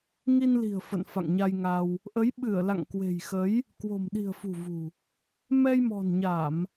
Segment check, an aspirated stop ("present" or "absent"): absent